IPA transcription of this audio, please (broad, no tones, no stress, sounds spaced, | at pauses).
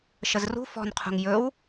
ʃ ə z r ṳ f ɔ̤ n qʰ ṳ ŋ j ɵ w